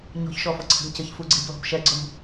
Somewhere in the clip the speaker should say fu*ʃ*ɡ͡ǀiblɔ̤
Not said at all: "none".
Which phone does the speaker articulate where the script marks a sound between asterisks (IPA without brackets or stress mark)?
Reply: none